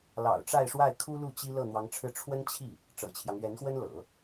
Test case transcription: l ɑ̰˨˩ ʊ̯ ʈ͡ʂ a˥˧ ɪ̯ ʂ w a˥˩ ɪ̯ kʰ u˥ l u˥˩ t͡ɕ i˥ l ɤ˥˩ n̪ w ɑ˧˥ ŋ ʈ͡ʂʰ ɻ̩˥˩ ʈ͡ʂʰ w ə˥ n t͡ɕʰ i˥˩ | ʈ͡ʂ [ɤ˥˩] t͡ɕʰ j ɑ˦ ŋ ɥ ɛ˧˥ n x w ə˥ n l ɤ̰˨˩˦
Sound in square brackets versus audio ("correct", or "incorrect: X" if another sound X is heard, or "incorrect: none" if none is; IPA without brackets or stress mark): incorrect: ɤ̰˨˩